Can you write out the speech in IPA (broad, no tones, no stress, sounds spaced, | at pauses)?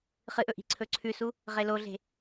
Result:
χ ɨ ʔ ɵ ʔ i̤ ǀʰ ɵ ǀʰ ʉ s u | ʁ e l o ɮ e̤